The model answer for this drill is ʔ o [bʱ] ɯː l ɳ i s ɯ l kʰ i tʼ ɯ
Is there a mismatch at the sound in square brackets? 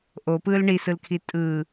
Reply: yes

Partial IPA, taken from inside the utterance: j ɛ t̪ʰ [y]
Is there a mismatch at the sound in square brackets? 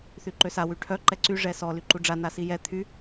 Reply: no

